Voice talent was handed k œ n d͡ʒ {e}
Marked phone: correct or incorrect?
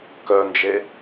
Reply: correct